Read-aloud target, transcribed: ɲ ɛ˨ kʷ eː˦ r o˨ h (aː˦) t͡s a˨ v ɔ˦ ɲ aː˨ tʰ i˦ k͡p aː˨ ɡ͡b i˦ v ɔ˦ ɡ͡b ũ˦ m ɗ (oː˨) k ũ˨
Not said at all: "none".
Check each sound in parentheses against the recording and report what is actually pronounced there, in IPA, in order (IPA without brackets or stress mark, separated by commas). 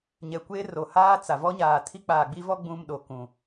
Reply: aː˦, o˨